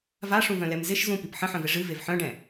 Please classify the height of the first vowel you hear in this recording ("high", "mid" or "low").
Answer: low